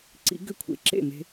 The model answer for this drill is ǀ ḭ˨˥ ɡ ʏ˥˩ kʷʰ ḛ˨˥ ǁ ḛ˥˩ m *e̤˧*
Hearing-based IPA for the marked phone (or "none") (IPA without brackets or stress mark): e̤˧